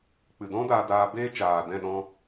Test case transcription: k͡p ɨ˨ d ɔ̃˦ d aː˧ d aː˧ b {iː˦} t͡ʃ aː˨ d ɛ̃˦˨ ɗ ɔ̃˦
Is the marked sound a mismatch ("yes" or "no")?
yes